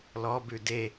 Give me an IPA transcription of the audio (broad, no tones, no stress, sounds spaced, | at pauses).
l ɔ b ʉ d e